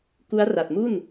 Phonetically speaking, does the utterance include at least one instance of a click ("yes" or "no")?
no